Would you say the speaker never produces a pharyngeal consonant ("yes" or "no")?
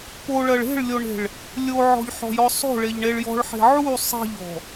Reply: no